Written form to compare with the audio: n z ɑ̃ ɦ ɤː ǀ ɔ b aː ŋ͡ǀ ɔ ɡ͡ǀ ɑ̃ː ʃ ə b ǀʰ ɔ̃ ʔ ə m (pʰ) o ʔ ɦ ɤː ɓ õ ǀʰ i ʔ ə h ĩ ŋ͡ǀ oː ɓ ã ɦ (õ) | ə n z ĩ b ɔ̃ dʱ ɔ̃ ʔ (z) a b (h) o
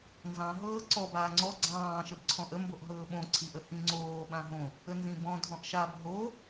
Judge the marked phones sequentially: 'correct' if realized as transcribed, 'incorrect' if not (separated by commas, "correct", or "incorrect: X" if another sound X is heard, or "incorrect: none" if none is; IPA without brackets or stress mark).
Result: incorrect: b, correct, incorrect: ʃ, incorrect: ɦ